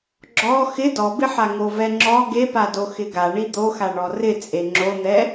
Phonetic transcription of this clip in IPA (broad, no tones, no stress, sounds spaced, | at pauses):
ɡ͡ǁ ɔ x ɪ d ɔ b ɪ ħ a ŋ o v ɛ ŋ͡ǁ ɔ ɡ e p a d o x ɪ ɡ a ɳ i d̪ o x a ɳ ɔ r ɪ t͡sʼ e ŋ͡ǁ o n̪ ɛ